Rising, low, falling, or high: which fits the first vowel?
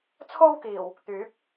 high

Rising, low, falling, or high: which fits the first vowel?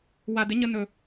low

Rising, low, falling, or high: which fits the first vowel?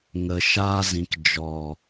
low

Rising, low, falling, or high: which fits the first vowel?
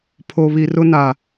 low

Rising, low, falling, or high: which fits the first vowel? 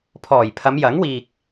low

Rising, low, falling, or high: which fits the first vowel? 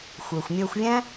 low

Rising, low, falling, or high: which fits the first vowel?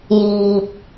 low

